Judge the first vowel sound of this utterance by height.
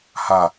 low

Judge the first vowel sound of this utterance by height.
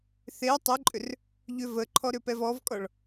mid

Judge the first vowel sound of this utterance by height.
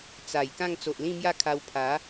low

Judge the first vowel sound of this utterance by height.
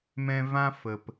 mid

